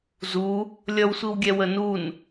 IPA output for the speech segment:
zu | lʲʌwsʷiwɡʲɛ wənun

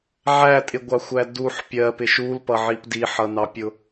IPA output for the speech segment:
ʕætʼɪɡʷɑxʷæ duħ pʲɜpɪʃ ulpʌʕip diħʌnɑpʲʊ

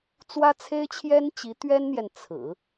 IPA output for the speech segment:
t͡swä˥t͡sʰe˥ɪ̯t͡ɕʰjɛ˥nt͡ɕi˧˥ t̪ɥɛ˥nn̪jɛ˨n t͡sʰɹ̩˨˩˦

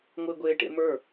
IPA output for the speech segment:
ŋʷɪːɡʷeːʈḛ mə˞

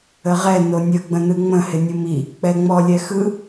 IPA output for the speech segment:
əʁɛ nonʲə ɡ͡bə̃nɯŋ͡mə̃ hɪnʲɯmi | k͡pɛŋ͡mɔ lʲɛxɯ

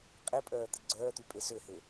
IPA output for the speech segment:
qʼipʼœː t̪ɪɡ͡ǀœːt̪y pʼesøhe

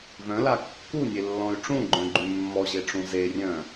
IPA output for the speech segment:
vœ̃la kːunʲelːɔ̃y̯ ʈ͡ʂũɡ͡ǃœ̃ɡ͡ǃy mːɔʑeʈ͡ʂũ zerʲœ̃

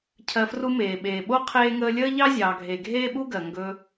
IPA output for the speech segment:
cʰɜ˨ fru˧meː˨ɓeː˨ɓo˦ qʰeː˦ŋəː˦ lʲəː˦ʎɑ˦zʲɑː˨ɡʱe˨ ɡʱeː˦ɓu˦ɡɜ˨ŋɡɵ˧

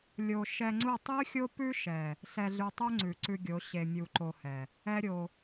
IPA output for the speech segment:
lʲo˨ ʃɛ˧ŋ͡ǀu˦˨ tˤʉ˦xʲo˦pʉ˦ʃɛ˨ | ɬɛ˧ɮʉ˧tˤu˦ŋ͡ǀʉ˨ ǀʉ˧ɡʲo˨˦ ɕe˧mʲu˧ǃo˧hɛ˨ | ɛ˦ɾʲo˧

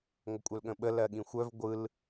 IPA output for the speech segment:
ŋʷəkʷʼœlɠə̃ɓə lɜɠĩxʷœv ɡʷɯl

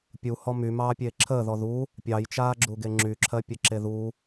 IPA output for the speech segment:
pʲuhɔ mymɑːpʲeː ǁʰəːðɔ ðu | pʲɑjt͡ʃaːɡ͡ǁuɡe ŋ͡ǁyǁʰɜpʲəǁe ðu

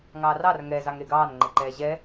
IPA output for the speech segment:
ŋɑːrɑr ŋɛ zɑŋɾeɡɑːn ŋ͡ǃeǃɛːʑɛ

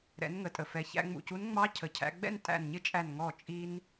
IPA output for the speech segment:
ɾɛ̰˩˧nŋə˩tʼə˩fɛ˩˧ çæ̰˧ŋ͡mṵ˧˩cu˧˥n ŋ͡mɑ˧˥cʰə˩˧cʰæ̰˧ɡ͡bɛ̰˥˨n tʼæ̰˧˩nɲɪ˥˨t͡ʃʼæ˧˩n ŋɔ˧˩ t͡ʃʼi˧n

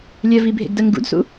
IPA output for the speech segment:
lʲɜvibʱḛɡdɜŋ ɡṵdsṵ

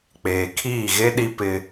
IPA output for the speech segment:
k͡peː˨kʰiː˦˨ɣe˦ ɗi˦pɪ˦

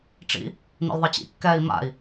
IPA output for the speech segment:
ʈ͡ʂḭ | n̪ḭlðˤɪt͡ɕḭ kːɛːi̯ma̰i̯

